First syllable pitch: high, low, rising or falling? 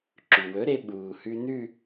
low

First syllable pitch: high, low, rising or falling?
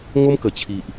high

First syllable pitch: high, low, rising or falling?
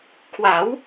rising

